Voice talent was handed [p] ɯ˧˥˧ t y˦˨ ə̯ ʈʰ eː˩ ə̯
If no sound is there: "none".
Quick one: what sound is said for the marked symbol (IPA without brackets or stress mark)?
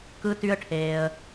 k